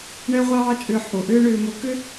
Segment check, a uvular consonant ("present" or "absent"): present